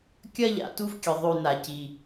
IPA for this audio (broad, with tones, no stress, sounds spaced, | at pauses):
kʲ ɐ˦ ʎ a̰˨ t u˦ v kʲ ɨ˨ ðˤ ʉ˨ n a˨ c i˦